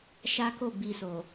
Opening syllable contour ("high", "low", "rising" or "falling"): high